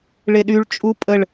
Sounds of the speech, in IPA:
ɭ e ɗ y ɭ t͡ʃʼ u pʼ ə ɭ

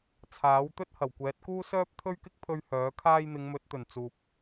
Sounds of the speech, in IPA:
t͡sʰ aː˨˥ w t̪ ɵ˥ t̚ h ɐ˨˩ w kʷ ɛː˨˥ t̚ k uː˥ s œː˥ p̚ t̪ʰ ɵ˥ ɥ k ɪ˥ k̚ pʰ ɵ˧ ɥ h œː˨˥ kʰ aː˥ j n̪ ɪ˨˧ ŋ m ɵ˨˥ t̚ t̪ ɵ˨˩ n t͡s uː˨ p̚

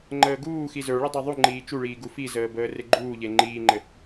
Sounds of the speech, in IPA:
ŋ͡ǃ əː ɡ uː x i z ə˞ ɭ i dˤ e ðˤ u ŋ͡ǃ iː t͡ʃ u ɭ iː ɡ u f i z əː b əː r e ɡ͡ǃ uː ʎ e ŋ͡ǃ iː ŋ͡ǃ ɘ

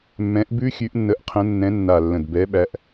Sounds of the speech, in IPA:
mː ɛ̃˨˦ ʔ b ʉ˦˥ xʲ ʉ˨˦ ʔ nː ə˨˦ ʔ qʰ ə̃˨˦ nː ɛ̃˨˦ nː a˨˩ lː ə̃˨˩ d b ɛ˨˦ ɓ æ˨˦ ʔ

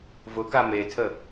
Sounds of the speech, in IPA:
v ʊ k a m e tʰ ə

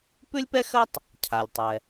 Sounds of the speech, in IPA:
p ʉ˥ lʲ p ɛ˥ x ɜ˥ tˤ | cʰ a˩ lʲ tˤ ɛ˩

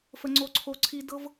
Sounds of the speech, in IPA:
f ə˦ ŋ͡ǀ o˦ ǀʰ o˦ ǀʰ i˦ d ɤ˦ v

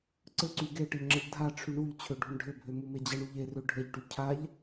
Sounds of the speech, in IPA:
ǀ ɘ ǀ y ɡ e ʈ ɘ ʎ ŋ͡ǁ ə ʎ dʱ a ʈ͡ʂʰ y ɳ u ʎ t͡ɕʰ ø ɖʱ u ɳ ɖʱ ɘ bʱ ø m u m e d͡ʑ ə ɳ u ʎ e r ø ɖʱ ə ʎ ʈ y cʰ a ʎ

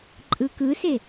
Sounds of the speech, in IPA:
ǃʼ ɯ k ɯ s e

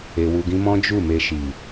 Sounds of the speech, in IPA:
e˧ w u˧ ɡ ĩ˦ m ɔ̃˦ d͡ʒ u˦˨ m e˧ ʃ i˨

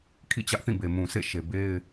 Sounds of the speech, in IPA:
kʰ ḭ˦˨ t͡ɕ ä˦ ʔ θ ĩ˦˨ b e˨ m ũ˨ s ḛ˦˨ ʃ e˨ b e˦ ɪ̯

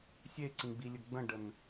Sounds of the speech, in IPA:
sʲ e ǀ ĩ ɡ͡b i lʲ ə ɡ͡b ə̃ ɖ ə n

